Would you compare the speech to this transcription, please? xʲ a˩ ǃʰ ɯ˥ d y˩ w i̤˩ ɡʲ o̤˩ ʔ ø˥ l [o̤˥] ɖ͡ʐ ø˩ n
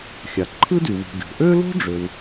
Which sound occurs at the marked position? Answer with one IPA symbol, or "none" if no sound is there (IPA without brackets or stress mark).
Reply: o̤˥